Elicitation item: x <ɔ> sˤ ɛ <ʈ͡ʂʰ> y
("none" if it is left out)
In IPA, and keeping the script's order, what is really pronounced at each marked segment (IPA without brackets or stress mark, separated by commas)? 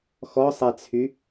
ɔ, t͡sʰ